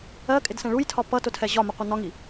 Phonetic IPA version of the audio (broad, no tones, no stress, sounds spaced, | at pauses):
ɜ kʼ ɪ d s ɛ̃ ɭ u j tʰ ɒ p ʌ t ʊ tʰ ɛ ʑ ɒ m ʊ qʷ ʌ n ɒ ŋ i